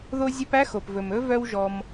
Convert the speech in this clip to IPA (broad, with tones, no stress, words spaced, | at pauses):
ðo˦zʲœ˦pæ˥ xo˩pvɵ˩m ɵ˥vœ˦wʒɔ˨m